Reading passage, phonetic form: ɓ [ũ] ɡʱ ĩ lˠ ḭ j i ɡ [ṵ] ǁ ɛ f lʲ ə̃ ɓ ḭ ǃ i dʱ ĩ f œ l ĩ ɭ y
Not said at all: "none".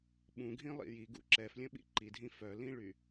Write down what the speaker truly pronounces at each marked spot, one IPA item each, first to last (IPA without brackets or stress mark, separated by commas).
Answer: ũ, ṵ